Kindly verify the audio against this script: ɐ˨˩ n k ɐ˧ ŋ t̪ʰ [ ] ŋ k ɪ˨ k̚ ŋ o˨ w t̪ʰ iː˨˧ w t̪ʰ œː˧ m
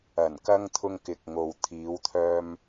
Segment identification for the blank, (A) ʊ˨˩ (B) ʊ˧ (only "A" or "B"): B